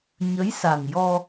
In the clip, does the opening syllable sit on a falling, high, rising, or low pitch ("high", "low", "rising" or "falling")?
rising